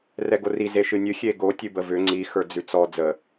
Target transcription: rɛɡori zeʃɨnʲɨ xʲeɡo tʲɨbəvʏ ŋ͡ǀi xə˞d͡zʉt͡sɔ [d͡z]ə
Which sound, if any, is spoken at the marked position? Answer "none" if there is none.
d͡z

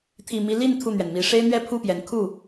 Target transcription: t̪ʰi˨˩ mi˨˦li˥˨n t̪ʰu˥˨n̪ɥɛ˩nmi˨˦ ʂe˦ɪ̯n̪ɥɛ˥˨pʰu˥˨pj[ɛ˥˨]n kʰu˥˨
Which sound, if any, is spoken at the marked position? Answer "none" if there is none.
ɛ˨˦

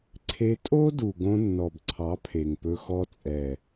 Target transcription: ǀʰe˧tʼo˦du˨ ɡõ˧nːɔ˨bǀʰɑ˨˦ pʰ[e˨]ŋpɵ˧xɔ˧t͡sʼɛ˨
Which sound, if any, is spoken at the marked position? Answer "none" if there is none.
e˨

